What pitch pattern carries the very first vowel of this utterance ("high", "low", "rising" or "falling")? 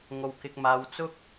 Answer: low